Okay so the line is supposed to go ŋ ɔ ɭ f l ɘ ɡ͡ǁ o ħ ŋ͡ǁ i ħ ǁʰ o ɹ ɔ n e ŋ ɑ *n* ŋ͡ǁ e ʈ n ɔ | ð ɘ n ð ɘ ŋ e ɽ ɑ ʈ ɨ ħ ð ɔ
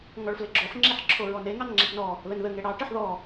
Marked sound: correct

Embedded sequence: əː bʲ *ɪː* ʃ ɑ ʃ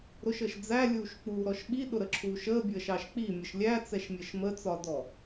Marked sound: incorrect: əː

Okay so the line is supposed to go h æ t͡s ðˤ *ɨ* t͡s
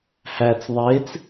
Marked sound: incorrect: e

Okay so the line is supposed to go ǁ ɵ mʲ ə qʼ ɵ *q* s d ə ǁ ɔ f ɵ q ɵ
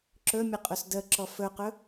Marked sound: incorrect: none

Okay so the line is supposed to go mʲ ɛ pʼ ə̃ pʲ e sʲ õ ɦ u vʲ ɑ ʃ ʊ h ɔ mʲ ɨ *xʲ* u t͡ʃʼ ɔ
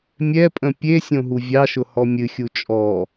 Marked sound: correct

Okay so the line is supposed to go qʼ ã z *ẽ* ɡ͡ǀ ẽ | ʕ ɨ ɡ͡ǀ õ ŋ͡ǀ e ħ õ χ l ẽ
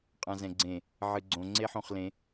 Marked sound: incorrect: ɛ̃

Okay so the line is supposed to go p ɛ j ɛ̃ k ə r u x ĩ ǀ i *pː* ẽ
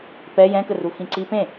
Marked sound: incorrect: p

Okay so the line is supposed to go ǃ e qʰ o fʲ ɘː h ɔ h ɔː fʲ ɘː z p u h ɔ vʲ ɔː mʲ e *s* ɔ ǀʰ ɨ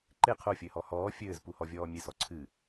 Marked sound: correct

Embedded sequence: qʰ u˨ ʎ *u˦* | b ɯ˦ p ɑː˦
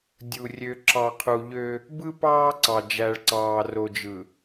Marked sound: incorrect: ø˦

